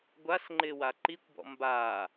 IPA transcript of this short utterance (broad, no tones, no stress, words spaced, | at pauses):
ɡʷasŋ͡ǃɪːwa ǃikʷbɔ̰ mbaː